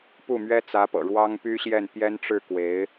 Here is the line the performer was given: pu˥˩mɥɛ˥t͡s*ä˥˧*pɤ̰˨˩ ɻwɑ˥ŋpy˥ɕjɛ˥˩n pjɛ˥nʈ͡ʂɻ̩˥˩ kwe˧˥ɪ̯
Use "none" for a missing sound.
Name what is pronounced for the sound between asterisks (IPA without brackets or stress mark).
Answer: ä˧˥